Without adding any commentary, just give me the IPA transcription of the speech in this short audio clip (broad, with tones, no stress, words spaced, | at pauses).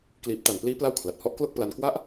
kliː˨˩p̚ta˨˩npliː˦˥ pla˥˩wkʰla˨˩t̚ hɔ˦˥ʔklo˥˩k̚pla˧n kwa˦˥ʔ